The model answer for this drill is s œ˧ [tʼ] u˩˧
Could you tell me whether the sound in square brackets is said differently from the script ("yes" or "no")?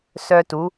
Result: yes